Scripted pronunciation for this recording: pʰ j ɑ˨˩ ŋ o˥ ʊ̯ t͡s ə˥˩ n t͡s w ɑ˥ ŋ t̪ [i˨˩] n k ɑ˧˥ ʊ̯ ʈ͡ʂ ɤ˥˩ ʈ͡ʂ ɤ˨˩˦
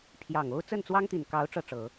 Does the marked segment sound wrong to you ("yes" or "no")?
no